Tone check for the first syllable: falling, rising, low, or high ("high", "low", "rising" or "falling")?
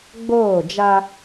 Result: falling